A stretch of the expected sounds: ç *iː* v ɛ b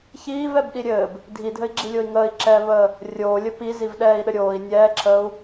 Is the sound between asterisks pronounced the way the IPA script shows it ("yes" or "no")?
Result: yes